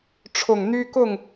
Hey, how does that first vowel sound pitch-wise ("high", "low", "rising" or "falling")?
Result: low